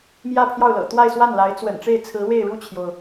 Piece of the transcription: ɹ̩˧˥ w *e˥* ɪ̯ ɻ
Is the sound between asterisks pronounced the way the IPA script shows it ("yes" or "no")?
no